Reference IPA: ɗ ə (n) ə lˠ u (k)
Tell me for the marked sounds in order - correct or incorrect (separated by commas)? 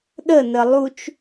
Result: correct, incorrect